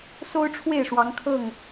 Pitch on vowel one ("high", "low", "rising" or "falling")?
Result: high